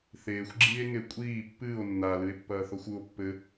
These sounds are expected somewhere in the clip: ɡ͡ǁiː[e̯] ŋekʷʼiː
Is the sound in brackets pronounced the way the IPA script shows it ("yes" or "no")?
yes